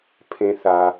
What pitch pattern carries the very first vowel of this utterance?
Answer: high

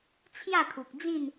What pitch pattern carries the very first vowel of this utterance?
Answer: falling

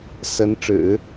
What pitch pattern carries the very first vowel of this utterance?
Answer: rising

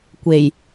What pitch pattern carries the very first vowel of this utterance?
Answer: low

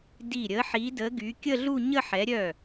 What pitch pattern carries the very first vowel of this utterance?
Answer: falling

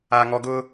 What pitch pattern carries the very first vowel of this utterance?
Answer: low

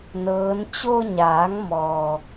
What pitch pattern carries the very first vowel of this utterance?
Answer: rising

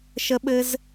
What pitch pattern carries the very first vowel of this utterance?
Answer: high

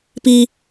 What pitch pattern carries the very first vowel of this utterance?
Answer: low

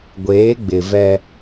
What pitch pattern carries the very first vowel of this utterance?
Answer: rising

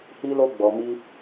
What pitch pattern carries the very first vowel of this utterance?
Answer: high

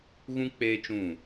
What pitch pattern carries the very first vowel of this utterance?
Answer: high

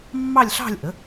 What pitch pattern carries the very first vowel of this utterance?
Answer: falling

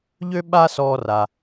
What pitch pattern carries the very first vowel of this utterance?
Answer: high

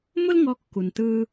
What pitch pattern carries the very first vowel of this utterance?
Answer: high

